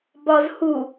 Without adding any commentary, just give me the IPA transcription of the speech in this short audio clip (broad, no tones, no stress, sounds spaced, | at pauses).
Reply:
b ɒ z h u